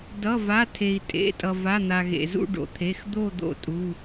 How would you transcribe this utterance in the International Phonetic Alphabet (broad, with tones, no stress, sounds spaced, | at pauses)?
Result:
d ʌ˩˧˩ v a˩˧˩ tʰ e˩ i̯ tʼ ḛ˩˧˩ tʼ ʌ˩ v a˩˧˩ n̪ a˩ ɣ ḛ˩ z ṵ˦˨ ɖ o̰˩ t̪ʰ e˩˧˩ x d̪ o˦˨ d̪ o̰˦˨ tʼ u˩˧˩